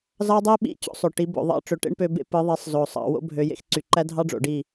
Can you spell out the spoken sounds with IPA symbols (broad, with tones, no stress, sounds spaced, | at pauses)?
z ɑ˦ dˤ i˦ ɓ ḭ˦˨ t͡ɕ o̰˦ sˤ ø˨ ʈ i˨˦ b o̰˨ ðˤ ɑ̰˦ ʈ͡ʂ ø˨ ʈ ḛ˦ ɳ p ø˧ b ḛ˦ p ɯ˨˦ ðˤ i˨˦ sˤ z o˨ sˤ ɑ̰˧ w o̰˦ bʱ ø˧ j ḛ˦ x ǀ y˨ ǃ æ˦ dʱ ɑ˦ ɖ͡ʐ o̰˨ ɖ i˦˨